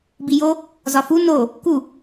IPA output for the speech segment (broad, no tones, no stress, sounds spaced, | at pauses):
b i j o | z ɒ f u n o | k u